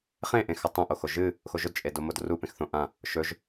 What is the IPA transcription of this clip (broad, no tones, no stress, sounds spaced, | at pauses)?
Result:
χ ẽ ʔ ẽ x a tˤ õ ʔ o x o ʒ ɨ | x o ʒ ɵ d t͡ʃʼ e d o m o d r u p ẽ x θ õ ʔ ã | ʃ ɵ ʒ